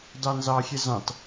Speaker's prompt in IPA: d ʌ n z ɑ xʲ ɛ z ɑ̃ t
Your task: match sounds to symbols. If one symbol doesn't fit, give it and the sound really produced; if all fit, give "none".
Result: ʌ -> ɑ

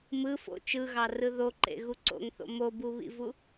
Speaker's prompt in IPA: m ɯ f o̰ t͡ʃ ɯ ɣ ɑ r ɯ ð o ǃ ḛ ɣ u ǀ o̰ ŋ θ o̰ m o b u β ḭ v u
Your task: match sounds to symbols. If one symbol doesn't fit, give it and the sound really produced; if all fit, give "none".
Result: none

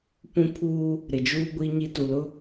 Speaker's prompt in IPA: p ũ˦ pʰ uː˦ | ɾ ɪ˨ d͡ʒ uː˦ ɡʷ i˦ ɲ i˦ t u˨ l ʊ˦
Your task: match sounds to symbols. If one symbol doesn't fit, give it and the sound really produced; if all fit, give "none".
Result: none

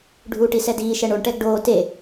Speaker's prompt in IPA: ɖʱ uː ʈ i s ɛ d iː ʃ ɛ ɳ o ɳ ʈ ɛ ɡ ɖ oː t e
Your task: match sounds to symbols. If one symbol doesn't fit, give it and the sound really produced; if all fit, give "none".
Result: none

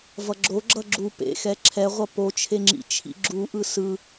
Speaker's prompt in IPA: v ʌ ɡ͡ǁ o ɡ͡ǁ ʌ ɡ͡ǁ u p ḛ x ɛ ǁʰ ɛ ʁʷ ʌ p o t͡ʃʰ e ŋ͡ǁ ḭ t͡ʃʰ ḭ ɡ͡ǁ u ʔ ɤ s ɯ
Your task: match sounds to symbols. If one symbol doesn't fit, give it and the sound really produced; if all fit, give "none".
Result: ɤ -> ɯ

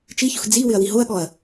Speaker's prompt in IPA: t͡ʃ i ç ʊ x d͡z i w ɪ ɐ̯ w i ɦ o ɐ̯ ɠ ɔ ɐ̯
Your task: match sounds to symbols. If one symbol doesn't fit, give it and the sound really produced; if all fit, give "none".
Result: none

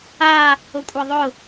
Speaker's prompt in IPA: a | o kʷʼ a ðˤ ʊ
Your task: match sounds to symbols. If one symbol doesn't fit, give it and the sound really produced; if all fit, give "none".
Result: none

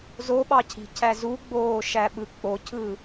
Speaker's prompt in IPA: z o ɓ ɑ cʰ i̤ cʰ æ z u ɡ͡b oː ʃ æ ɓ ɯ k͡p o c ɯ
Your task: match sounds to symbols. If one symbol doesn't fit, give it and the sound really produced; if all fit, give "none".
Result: c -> cʰ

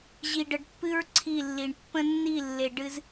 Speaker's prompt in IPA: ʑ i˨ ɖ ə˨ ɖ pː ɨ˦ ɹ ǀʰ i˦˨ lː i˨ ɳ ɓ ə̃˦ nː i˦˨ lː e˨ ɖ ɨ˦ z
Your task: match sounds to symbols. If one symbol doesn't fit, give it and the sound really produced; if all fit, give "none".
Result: ɓ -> pː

